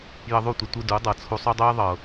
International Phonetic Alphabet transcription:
jə˧ðˤu˦˨tʷə˧tʷɯ˧ du˨˦dˤɤ˨t͡sʰu˧sˤo˦ dˤø˦jðˤɤ˨

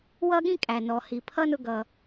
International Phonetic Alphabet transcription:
wʌ˥ɠĩ˥ kʼæ˩nɔ˩ hi˩pʰʌ˥nʊ˧ ɡʌ˩

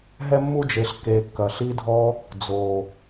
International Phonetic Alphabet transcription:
ɦɛ˧mːu˧d͡ʒe˨ɬ ke˨kːɐ˨ ɬi˦dʱɔ˦ | d͡zo˨

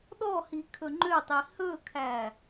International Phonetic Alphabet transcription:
ɗɔhi kʰɵŋ͡ǃøtˤi hɵkʰæ

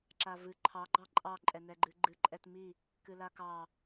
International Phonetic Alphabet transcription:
ǁavɨ ǃʰɑ ɡ͡ǃɑǃʼɑ ǃʼɛnɛɡ͡ǃɨɡ͡ǃɨ ǃʼɛtmi | kɨlakɑ

